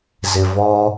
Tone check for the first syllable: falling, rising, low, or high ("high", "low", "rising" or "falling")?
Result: low